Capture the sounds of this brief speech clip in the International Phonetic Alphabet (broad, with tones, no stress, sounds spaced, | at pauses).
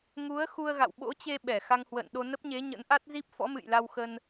ŋ u˨˦ ə̯ x u˧ ə̯ ɣ a̰˧˨ w ɓ o̰˧˥ t͡ɕ e˧ ɓ ɛ˧˩ x a˧ ŋ h w ə̰ː˧˨ n ɗ o˧ n ə˦˥ p̚ ɲ e˨˦ ɲ ə̰˧˥ n ʔ a˦˥ t̚ z i˦˥ p̚ f ɔ̰˧˥ m ɨ̰˧˨ j l a˧ w x ə˧ n